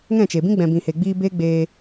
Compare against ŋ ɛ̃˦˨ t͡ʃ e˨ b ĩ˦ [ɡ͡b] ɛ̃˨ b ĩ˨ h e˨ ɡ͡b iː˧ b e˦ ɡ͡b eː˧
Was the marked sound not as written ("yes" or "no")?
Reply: no